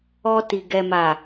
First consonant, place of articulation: alveolar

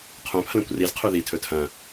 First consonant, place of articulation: uvular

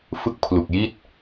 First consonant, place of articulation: labial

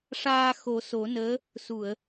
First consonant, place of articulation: retroflex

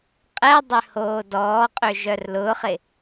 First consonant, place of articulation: uvular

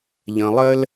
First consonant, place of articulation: palatal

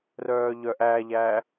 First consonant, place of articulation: alveolar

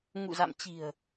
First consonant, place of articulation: velar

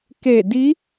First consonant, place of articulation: velar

